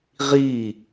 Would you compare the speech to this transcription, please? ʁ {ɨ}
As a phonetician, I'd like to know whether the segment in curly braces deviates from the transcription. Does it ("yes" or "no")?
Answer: yes